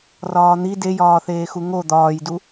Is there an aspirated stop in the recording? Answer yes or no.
no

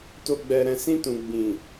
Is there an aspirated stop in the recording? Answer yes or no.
no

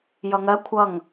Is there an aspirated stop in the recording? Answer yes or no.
yes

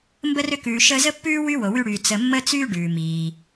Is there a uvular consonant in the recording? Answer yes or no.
no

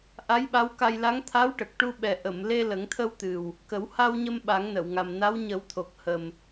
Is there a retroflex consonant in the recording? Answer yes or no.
yes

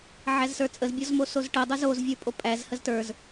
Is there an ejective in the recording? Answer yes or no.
yes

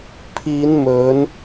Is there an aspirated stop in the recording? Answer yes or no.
yes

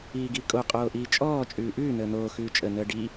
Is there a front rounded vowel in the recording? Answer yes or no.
no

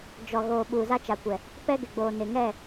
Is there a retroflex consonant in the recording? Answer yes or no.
no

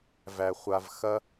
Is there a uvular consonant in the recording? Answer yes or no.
yes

